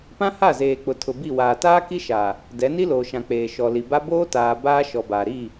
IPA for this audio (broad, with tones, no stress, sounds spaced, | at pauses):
p ã˦ h a˦˨ z eː˨ k͡p ʊ˨ tʰ ʊ˨ b i˦˨ w aː˨ t aː˦ k i˦ ʃ aː˨ | d ɛ˨˦ n i˦ l oː˨ ʃ ã˨ k͡p eː˨ ʃ ɔ˨ l i˨ b a˦ b oː˦ t aː˨ b aː˦ ʃ ɔ˨ b aː˨ ɾ iː˦˨